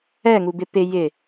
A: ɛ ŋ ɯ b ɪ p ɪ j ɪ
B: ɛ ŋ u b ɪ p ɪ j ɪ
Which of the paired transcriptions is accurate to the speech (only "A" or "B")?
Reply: B